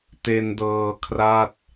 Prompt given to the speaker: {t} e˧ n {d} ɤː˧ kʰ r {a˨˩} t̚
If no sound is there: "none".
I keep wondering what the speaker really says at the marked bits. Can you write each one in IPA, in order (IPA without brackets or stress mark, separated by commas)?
t, d, a˥˩